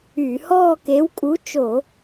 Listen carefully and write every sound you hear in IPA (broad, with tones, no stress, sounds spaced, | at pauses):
yː˧˩˧ h ɔː˥˧ k e˨˥ w kʼ u˨˥ t͡ʃ o˧˩˧